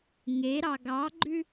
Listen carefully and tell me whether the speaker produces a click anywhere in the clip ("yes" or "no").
yes